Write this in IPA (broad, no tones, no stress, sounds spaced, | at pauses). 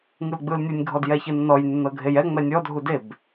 ŋ ɯ l ɡ͡b ɯ l nʲ ɯ nʲ ɡʱ ɔ d j ɛ ç ɯ nː ɔ j nː ɤ ɡʱ e j ɛ ŋ͡m ɛ nʲ ɔ dʱ u d e b